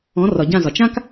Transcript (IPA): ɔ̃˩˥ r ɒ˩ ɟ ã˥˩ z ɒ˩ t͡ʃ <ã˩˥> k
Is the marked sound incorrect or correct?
incorrect